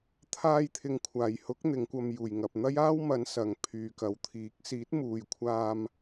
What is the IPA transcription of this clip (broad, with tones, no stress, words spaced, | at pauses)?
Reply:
t̪ʰaː˧jt̪ʰɪ˨ŋkʷʰaː˨˩jhʊ˨˥k̚ n̪ɪ˨˧ŋkʷɐ˧m juː˨˩jŋɐ˨p̚ n̪ɐ˥jaː˥wmɐ˨˧n sɐ˨ŋ pʰyː˨kɐ˨˥wt̪ʰiː˨˥k̚ siː˨˥t̚muː˨jkʷʰaː˧m